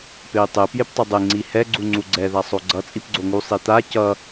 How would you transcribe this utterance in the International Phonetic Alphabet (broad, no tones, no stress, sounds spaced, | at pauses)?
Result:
p e i̯ tˤ e p j e p tˤ i dˤ e ŋ͡ǀ i h ɛ ɡ͡ǀ u ŋ͡ǀ u ɡ͡ǀ ɛ ð a sˤ o ɡ͡ǀ ʌ t͡sʼ i p ɡ͡ǀ o ŋ u sˤ i t̪ a c ʌ